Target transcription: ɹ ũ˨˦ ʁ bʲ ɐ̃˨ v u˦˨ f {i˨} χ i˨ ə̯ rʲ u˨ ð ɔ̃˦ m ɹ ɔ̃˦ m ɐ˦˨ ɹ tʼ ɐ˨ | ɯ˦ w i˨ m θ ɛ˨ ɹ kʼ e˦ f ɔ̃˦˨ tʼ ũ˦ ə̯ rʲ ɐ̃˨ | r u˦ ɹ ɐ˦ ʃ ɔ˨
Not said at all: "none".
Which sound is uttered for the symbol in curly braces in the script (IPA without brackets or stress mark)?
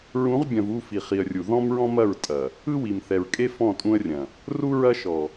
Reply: i˨